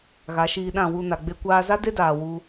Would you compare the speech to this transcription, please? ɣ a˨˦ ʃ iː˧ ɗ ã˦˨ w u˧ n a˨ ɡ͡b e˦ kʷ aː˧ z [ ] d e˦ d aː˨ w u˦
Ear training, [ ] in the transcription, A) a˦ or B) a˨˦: A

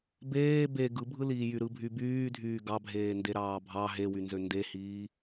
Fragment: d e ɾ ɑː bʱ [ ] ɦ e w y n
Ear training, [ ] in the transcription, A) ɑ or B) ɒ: A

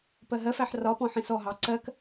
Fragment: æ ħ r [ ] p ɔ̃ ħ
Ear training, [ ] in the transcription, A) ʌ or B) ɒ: B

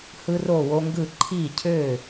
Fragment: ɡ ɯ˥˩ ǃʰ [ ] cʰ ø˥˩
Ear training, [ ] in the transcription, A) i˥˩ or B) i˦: A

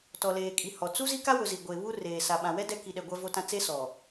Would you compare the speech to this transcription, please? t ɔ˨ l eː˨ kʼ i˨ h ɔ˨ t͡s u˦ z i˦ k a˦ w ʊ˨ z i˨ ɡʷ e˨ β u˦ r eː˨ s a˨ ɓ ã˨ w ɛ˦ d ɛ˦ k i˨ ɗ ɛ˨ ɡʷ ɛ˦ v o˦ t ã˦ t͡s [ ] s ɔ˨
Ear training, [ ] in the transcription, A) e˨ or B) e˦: B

